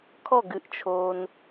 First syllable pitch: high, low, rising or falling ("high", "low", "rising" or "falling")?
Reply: falling